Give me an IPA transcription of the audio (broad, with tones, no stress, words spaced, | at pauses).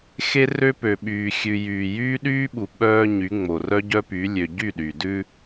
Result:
xe˦ rø˦pø˨ɓyː˨xʲʉ˨ jyː˨jyː˦ɗyː˦ɓu˨ ɓœː˦ɲy˨˦ŋ͡mo˨ rœ˦ɟœ˦py˨˦ lʲø˨ ɟy˦˨ɗy˨dʉ˦